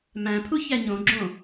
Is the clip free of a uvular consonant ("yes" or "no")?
yes